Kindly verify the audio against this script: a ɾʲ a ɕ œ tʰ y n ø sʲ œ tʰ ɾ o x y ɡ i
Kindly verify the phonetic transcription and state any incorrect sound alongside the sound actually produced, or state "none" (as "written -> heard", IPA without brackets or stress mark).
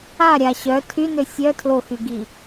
ɾ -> l